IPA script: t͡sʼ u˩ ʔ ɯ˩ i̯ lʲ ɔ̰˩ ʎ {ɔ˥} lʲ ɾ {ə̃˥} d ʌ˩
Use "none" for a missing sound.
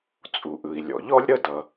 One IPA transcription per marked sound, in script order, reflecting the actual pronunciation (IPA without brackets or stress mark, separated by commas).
ɔ˥, ə˥